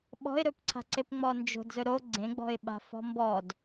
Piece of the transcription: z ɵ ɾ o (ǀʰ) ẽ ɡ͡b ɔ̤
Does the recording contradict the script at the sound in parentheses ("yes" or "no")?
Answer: yes